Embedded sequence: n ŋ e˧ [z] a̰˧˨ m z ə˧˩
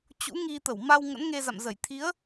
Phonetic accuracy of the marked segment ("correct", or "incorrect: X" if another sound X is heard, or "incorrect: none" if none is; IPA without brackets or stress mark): correct